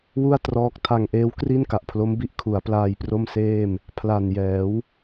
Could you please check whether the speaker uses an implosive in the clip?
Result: no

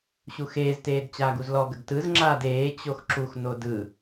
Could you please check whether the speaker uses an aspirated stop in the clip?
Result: no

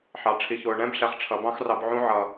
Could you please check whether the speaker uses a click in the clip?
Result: no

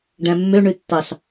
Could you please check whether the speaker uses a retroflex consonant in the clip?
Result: yes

